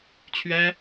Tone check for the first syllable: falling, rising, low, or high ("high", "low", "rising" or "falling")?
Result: high